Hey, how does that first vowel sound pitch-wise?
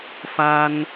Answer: high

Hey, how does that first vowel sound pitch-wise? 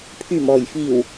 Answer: low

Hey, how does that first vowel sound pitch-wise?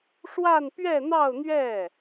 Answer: falling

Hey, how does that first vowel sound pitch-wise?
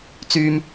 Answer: low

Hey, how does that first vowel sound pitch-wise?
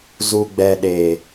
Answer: low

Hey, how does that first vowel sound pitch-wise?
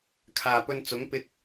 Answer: low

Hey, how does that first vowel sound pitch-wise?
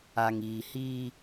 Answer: low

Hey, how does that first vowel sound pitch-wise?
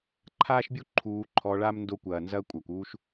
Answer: high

